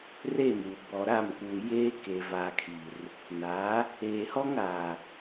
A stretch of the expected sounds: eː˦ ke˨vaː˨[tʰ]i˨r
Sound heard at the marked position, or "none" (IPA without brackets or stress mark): kʰ